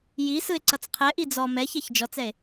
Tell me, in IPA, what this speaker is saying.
j i s ɯ e̯ ǀ ʌ t͡s qʰ ɛ ʔ i d͡z ɔ m ɛ ç ɛ ç d͡ʒ ɔ t͡s ɛ e̯

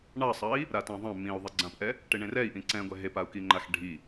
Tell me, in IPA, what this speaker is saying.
ɳ ɑ sˤ ɑ i̯ | ɾ a t ɑ̃ ðˤ ɑ̃ m ĩ u̯ ðˤ e ɡ͡ǀ ã p ʔ ɛ | ʈ e ɳ ẽ r ɛ i̯ ʔ ĩ ǀ ɛ̃ ɡʷ ɛ ɦ e p a u̯ k i ŋ͡ǃ a x ɖʱ i

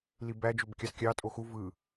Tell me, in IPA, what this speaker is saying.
l i b æ d͡ʒ ø b kʲ ɑ s kʲ ɑ tʼ o x u v ɯ

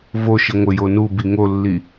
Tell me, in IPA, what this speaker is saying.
v o ʃ i ŋʷ ɪ j o n u b i ŋ o lː i

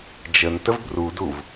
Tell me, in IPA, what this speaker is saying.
d͡ʒ ə n t ə v b r u d u v

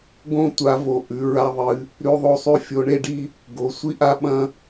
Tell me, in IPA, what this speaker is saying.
ɡ õ˦ tʷ a˨˦ v o˨˦ ʔ ʉ˨˦ ɹ a˦ ðˤ ɨ˨˦ | ɾ ʉ˦ ðˤ o˦ sˤ ʉ˦ fʲ o˨˦ ɳ e˦ ɖ i˦ | ɡ o˨˦ sʷ i˦ ʔ a˦ ɓ ɐ̃˦

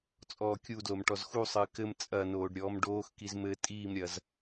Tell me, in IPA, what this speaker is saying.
t͡sʼ ɔː kʲ u d l o m ʈ ɔ z x u sˤ ɨː k ɘ m t͡sʼ ɐ n oː ɖ ɾʲ ɔː m ɖ oː x k i z m ɘ tʼ iː m ɾʲ ɐ z

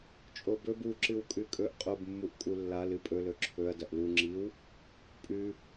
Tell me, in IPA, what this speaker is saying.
t͡ʃʼ o b ɵ b u ǁ ɨ w kʼ ʉ kʼ ɵ ʔ qʼ o b mː u ʔ kʼ u lː a l ɨ pʼ ɵ l ɵ ǁʰ ɵ ɐ̯ d ɐ ʔ l u ŋ͡ǁ i w | pʼ ʉ

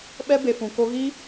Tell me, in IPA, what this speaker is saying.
ɓ ɛ˦ b e˨ f ũ˨ k o˧ ɣ i˦

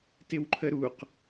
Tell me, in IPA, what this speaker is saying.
t ɪ w ǃʰ ə ɾ u q

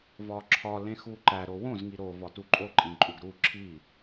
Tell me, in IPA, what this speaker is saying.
v ɒ ǁʰ ɒ l ẽ x u ǃ æ ɾ o w õ z ŋ i ɾ o v ɒ t u ǃʼ o ǃʼ ĩ ǃʼ u ɡ ɾ u ǁʰ i

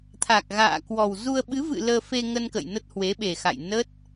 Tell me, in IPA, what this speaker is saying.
t̪ʰ a˨˩ k̚ ɣ a̰ː˧˨ k w ɔ˨˩ w z u˧ ə̯ ɓ ɨ˨˦ v ɨ̰˧˨ l əː˧ f e˧ ŋ ə˧ n k ə̰˧˨ j n ə˦˥ t̚ h w e˨˦ ɓ e˨˩ x a̰˧˨ j n ə˦˥ t̚

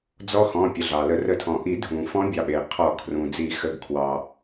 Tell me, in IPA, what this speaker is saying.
d͡z ɔ˧˥ x ɔ̃˩˧˩ pʲ ə˩˧˩ ɮ ɑ˩ l ə˨˩˦ r ə˨˩˦ tʰ ɔ̃˩ ʔ i˨˩˦ dʱ ũ˩ f ɔ̃˧˥ bʲ ɑ˩˧˩ ɓ e˩ qʰ ɔ˨˩˦ kʰ r ũ˩ d͡z i˨˩˦ x ə˩˧˩ ɡ kʰ w ɑ˩

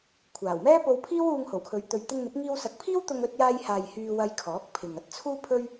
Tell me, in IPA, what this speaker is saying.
kʷʰ aː˨˩ w m ɛː˥ p o˧ w pʰ iː˥ w uː˧ ŋ h o˨˩ w kʰ ɵ˨˧ ɥ t̪ ɵ˨ ɥ t̪ ɪ˧ ŋ n̪ ɪ˨˥ k̚ ŋ iː˧ w s ɐ˨˥ k̚ pʰ iː˥ w t̪ ʊ˧ ŋ ɵ˧ t̚ j aː˧ j h aː˨ j h yː˧ w ɐ˧ j kʰ ɔː˨˥ k̚ pʰ ɪ˨ ŋ ɐ˧ t̚ t͡sʰ uː˥ pʰ ɵ˥ ɥ

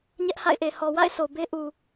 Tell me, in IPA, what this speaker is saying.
ɲ ɛ˦ ʔ h a̰˦˨ ɪ̯ ʔ e˨ h ɔ˨ w a̰˦˨ ɪ̯ sʰ o˨ b e˦ ʔ u˨

